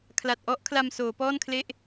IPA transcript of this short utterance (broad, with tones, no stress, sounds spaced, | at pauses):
kʰ l a˨˩ t̚ ʔ ɔ˦˥ ʔ kʰ l a˧ m s oː˩˦ p ɔː˥˩ n kʰ l e˥˩ ʔ